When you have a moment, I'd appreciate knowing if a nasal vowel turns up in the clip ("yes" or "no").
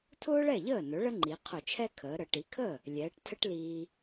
no